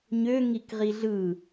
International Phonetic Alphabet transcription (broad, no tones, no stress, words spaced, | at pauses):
ɲø ŋikʁiɮɯ